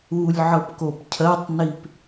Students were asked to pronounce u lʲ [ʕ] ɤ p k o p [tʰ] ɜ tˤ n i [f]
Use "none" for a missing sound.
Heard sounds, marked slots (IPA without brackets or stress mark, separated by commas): ʕ, cʰ, p